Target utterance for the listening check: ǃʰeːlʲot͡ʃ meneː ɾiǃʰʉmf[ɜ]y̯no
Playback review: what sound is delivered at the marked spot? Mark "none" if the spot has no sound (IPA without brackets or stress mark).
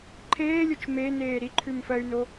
ɜ